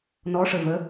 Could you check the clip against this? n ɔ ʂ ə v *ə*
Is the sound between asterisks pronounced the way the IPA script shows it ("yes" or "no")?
yes